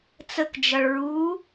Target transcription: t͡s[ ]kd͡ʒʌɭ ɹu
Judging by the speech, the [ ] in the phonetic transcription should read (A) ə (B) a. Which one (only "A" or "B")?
A